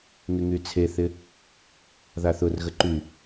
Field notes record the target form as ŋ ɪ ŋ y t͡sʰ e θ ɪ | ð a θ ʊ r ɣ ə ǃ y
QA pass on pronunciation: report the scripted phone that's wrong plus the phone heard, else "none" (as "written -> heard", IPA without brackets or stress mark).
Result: none